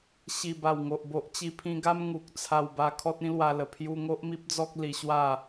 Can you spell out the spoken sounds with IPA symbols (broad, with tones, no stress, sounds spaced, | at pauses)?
ɕ i˨˩ b a˨˩ w ŋ o˨ ʔ b o˨ ʔ t͡ɕ i˧ pʰ ĩ˧ ɡ a˦ m ŋ u˨ k̚ t͡sʰ a˧ w b a˧ kʰ ɔ˦ t̚ ĩ˦ l w a˧ l ə˨˩ pʰ j u˧ ŋ o˦ ʔ m i˦ p̚ d͡z ɔ˦ k̚ l i˧ ɕ w a˥˧